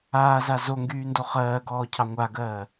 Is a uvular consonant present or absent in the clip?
present